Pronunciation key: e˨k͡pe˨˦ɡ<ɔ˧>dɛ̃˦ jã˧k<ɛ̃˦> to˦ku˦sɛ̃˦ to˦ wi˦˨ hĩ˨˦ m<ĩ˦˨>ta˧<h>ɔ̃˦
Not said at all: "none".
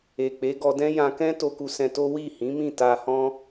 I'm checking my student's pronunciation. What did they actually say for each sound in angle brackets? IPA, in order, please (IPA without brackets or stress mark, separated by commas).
ɔ˧, ɛ̃˦, ĩ˦˨, h